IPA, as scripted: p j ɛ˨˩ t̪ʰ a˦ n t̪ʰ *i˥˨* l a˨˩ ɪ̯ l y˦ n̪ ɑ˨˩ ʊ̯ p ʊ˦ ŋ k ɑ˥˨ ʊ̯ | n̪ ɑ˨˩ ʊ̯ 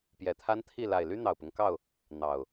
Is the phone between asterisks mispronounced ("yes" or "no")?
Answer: no